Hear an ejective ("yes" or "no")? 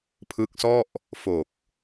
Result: no